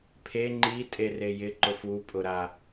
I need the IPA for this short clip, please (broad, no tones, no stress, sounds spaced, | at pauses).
pʰ e ŋ͡ǃ i tʼ e r e j ɪ ǃ ʊ f u pʼ ʊ ɾ a